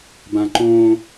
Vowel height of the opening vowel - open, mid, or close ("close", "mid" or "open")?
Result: open